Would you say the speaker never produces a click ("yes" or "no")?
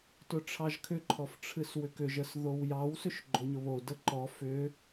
no